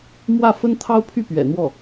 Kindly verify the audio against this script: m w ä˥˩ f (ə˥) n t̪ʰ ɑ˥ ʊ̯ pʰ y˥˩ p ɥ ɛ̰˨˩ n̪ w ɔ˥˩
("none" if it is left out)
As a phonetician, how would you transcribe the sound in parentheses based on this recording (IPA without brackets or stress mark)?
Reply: ə˥